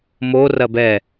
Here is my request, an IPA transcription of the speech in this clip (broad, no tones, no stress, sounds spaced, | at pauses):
m o r ɐ b ɛ